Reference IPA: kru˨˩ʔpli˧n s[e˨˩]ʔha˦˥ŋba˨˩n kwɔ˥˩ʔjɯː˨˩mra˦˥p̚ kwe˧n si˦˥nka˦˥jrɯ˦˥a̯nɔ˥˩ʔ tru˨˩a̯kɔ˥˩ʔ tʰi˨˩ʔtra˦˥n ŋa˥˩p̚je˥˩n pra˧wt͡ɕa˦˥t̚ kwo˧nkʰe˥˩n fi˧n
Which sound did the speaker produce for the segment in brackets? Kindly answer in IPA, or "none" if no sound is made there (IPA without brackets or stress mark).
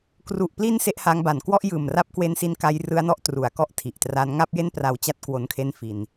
e˥˩